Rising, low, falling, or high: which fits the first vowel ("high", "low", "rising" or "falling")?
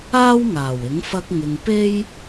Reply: high